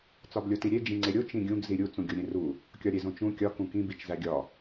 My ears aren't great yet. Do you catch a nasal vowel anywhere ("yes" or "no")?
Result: yes